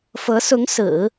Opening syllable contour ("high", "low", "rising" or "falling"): rising